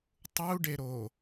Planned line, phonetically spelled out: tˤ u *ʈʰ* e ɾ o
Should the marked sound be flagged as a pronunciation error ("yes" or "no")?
yes